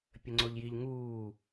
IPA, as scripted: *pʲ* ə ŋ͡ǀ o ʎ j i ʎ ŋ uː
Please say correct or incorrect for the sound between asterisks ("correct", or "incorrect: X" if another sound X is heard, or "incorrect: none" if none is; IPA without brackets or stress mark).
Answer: correct